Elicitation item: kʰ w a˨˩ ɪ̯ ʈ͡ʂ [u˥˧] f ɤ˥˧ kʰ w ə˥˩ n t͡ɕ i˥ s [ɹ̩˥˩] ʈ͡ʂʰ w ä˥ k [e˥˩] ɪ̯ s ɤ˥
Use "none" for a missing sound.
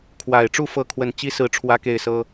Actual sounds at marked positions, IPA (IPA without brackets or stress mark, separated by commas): u˥˧, ɹ̩˥˩, e˥˩